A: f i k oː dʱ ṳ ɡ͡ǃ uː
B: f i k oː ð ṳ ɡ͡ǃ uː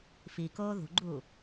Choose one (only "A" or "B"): B